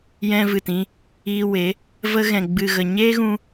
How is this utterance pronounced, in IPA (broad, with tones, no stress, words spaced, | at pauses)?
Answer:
jɛ̃˧vɨ˨tĩ˧ | iː˧we˨˦ | və˧ɣɛ̃˨ɡ͡bɨ˨ɣə˨ ɲe˦ɣũ˧